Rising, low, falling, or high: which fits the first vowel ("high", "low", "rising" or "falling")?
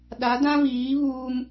rising